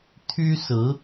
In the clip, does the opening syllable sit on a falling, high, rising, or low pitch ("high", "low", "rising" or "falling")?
high